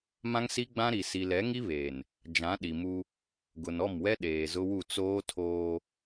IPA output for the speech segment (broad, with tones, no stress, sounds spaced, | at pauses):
m ã˦ ŋ s i˦ ɡ͡b ã˦ ɾ i˨ s i˨ l ɛ˨˦ ŋ i˦ β eː˨ n | d͡ʒ ã˨˦ ɗ i˨ m u˦ | ɡ ʊ˨ n ɔ˦˨ m w ɛ˦ ɗ eː˨ z ʊ˦ w u˦˨ t͡s oː˦ tʰ oː˦